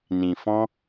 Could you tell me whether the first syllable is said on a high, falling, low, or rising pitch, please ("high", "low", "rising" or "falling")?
low